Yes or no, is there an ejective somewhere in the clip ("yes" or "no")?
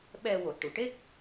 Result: no